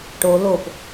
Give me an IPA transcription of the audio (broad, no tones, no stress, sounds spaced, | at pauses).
ʈ o l o p